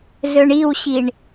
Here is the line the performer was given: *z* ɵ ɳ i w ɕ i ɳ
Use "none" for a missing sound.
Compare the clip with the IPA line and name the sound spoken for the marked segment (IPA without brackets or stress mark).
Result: z